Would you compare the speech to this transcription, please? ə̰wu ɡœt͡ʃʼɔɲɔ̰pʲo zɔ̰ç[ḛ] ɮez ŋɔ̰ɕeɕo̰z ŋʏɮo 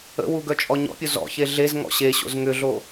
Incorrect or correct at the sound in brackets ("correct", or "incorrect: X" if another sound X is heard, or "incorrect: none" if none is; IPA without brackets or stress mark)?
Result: incorrect: e